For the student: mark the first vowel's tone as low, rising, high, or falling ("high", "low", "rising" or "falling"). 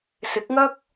rising